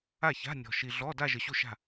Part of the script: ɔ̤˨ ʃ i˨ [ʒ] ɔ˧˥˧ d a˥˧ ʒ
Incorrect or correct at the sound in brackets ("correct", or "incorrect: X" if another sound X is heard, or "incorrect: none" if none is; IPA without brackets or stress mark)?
incorrect: ɮ